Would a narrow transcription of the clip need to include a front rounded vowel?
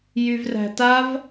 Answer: yes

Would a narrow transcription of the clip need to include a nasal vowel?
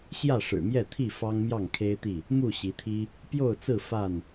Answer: no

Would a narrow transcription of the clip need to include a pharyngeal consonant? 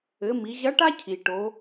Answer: no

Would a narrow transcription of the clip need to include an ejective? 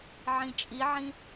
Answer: yes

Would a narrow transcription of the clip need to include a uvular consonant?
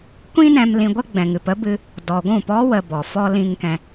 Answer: no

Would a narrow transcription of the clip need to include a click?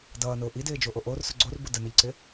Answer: yes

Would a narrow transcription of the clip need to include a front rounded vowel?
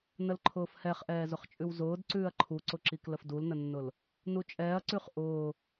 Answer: no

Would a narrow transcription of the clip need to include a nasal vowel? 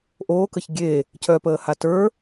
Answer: no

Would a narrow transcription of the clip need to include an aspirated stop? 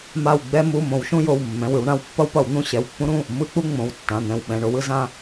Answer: no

